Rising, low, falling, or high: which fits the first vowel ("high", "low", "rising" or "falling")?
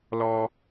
low